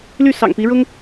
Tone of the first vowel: falling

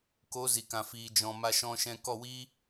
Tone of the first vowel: rising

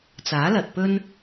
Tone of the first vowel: rising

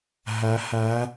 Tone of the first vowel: rising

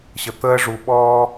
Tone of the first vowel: low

